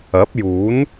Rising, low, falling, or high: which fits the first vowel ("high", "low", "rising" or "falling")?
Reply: rising